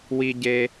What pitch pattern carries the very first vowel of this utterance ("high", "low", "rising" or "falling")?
high